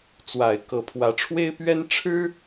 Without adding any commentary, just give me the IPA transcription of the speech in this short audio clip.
t͡swa˨˩ɪ̯ kɤ˧˥pʰwä˧˥ ʈ͡ʂʰwe˥ɪ̯pɥɛ˥n ʈ͡ʂʰɻ̩˥

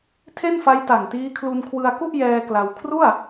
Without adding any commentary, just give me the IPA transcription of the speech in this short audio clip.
tʰe˥˩nfa˦˥jta˨˩ŋtiː˦˥ kʰlu˧nkʰwɯ˧a̯ku˥˩ʔjɛː˧ kla˧w kʰru˥˩a̯

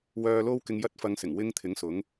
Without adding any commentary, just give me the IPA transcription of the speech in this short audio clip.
wœː˧lo˥wkɪ˧ŋ jɐ˥t̚fɐ˧ŋsɪ˨˩ŋ wɪ˧ŋ t̪ʰɪ˨˥ŋsʊ˨˥ŋ

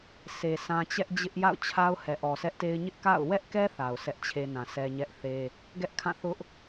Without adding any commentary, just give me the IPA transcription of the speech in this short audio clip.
se˨sʰã˦ t͡ɕɛ˦ʔd͡ʑɪ˦ʔ ja̰˦˨ʊ̯t͡ɕʰa˦ʊ̯ hɛ˨ʔɔ˨sʰɛ˦ʔte˦ɪ̯ ɲɪ˦ʔka̰˦˨ʊ̯ wɛ˦ʔkɛ˦ θa˨ʊ̯sʰɛ˦ʔt͡ɕʰe˦ nã˨sɛ˦ ɲɛ˦ʔθe˦ | ɡɛ˦ʔkʰã˦˨θʊ˦ʔ

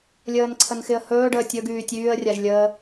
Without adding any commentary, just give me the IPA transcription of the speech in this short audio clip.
lʲəːnǀʰənxɪə̯hɵː ɖəːtʲɵɡ yːtʲyːə̯ rʲaʒlʲə

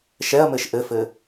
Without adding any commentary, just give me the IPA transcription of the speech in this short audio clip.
ʃɛɐ̯mɘʃ ʔɘfɘ

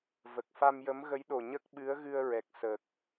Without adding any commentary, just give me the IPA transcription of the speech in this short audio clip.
və˨˩k̚ fa˧mjə˧˥mɣə˧˥jɗo˨˩ ɲə˦˥k̚ɓɨ˧˥ə̯ɣɨ˧ə̯ ɹɛ˨˩k̚ sə˨˩k̚

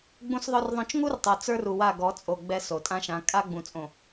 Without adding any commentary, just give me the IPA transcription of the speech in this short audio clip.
ɡ͡bũ˦sðˤœ˦rðˤœ̃˦t͡ʃ ŋu˦rtˤo˨ t͡sə˞˦ru˨wa˦˨ ɡɔ˨˦t͡sʼo˨ɡ͡bɛ˦ so˨tʼã˦ʃã˨˦ kʼa˦ɡ͡bũ˨t͡sʼõ˨

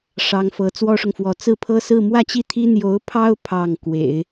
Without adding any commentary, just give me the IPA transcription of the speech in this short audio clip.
ʂɑ˧˥ŋfɤ˧˥ t͡swɔ˥ʂʊ˨ŋfwɔ˧˥ t͡sɹ̩˥˩ pʰɤ˥sɹ̩˥˧ mwä˥˧t͡ɕi˥˩t̪ʰi˥ n̪jo˧˥ʊ̯pʰɑ˥ʊ̯ pʰɑ˥˩ŋ kwḛ˨˩˦ɪ̯

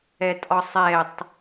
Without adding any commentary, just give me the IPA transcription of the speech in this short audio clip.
ɛtʼɒsˤɛtˤ

